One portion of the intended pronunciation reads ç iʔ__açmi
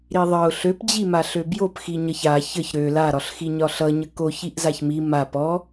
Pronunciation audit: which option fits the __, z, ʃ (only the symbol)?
z